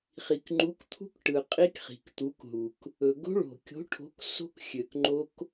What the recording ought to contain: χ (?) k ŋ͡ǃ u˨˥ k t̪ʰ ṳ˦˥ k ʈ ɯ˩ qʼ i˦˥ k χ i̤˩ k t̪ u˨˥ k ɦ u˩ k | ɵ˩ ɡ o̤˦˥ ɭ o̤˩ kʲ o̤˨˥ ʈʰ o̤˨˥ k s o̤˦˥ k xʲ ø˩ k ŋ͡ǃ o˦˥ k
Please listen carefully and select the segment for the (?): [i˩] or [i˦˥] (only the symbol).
i˩